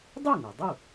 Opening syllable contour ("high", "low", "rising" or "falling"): falling